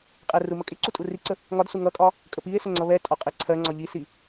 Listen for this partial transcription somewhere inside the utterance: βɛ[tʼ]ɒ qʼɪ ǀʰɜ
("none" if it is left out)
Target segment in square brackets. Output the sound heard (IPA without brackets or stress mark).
tʼ